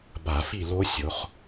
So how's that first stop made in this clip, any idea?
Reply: plain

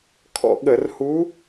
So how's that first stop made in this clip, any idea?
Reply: aspirated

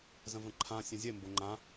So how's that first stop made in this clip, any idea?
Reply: click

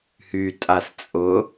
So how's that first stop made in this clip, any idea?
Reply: ejective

